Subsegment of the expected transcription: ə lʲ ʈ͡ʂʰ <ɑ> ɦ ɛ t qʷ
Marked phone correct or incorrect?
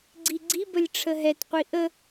incorrect